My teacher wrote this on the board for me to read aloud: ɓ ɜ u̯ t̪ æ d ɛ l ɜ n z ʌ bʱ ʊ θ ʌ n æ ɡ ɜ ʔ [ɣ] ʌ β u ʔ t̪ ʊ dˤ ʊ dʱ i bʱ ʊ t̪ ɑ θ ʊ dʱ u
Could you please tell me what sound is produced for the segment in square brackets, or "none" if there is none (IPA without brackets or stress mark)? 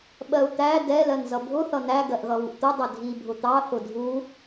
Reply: ɣ